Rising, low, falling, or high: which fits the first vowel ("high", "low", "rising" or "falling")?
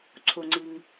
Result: low